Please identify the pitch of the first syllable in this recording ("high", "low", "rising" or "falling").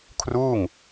falling